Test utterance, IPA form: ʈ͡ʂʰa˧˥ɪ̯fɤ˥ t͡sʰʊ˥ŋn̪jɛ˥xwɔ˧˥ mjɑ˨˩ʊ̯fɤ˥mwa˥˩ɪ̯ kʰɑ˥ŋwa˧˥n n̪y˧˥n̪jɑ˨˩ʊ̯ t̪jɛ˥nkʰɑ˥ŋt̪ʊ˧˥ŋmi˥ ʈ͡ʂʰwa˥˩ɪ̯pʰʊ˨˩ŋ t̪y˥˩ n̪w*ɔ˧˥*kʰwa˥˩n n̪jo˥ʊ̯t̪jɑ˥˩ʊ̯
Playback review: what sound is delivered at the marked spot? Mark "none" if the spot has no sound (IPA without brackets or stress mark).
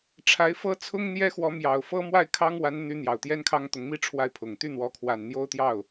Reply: ɔ˥